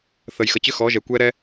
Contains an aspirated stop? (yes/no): no